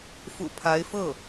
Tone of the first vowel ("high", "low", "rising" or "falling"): low